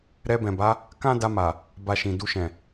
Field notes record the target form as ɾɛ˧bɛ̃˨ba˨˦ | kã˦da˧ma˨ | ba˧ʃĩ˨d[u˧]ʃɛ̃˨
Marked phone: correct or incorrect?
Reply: correct